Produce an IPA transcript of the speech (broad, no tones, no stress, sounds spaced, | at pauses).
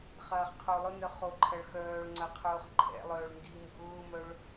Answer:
χ ɐː χ qʰ o lˠ ʊ n œ χ o ǃʰ ɐ ɭ x œː ɭ ŋ͡ǀ ɐ qʰ ʊː χ ǃʰ ɛ̰ lˠ œː ɭ ŋ ɡ i m b ʊː m œ ɭ